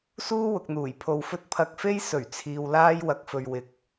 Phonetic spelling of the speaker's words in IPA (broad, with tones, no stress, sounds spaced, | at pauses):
s uː˥ w ʊ˨ k̚ n̪ uː˨˩ j pʰ o˨ w f ɵ˥ t̚ pʰ ɐ˧ k̚ f e˥ j s ɵ˨˩ ɥ t͡sʰ iː˨ w l aː˥ j w ɐ˧ k̚ f ɵ˧ ɥ w ɪ˨ k̚